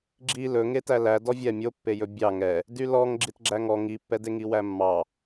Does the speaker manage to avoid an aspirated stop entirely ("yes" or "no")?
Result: yes